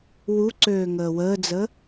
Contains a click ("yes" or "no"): yes